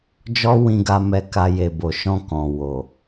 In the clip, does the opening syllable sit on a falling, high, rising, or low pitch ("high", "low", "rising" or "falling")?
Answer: high